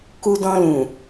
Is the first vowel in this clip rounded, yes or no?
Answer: yes